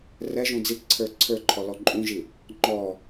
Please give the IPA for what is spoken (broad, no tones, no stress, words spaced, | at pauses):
rɛʒũ d͡zipǀʰə˞ ǀʰə˞ǃʰɔlɔ ǃʼũʒi | ŋ͡ǃɔ